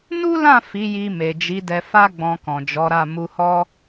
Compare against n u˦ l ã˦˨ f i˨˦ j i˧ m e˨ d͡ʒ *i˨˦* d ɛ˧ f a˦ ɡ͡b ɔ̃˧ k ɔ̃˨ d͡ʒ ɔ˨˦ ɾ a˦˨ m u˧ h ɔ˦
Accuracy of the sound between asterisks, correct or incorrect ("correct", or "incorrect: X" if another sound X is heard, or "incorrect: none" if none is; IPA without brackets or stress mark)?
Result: correct